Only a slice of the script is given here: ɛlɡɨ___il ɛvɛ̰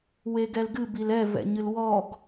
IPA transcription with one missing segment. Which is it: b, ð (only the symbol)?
b